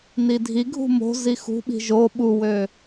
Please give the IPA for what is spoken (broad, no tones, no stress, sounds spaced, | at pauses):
n i dʱ i ɡʱ ṳ m o̤ z i x ṳ ɓ i̤ ʒ o ɓ u w ø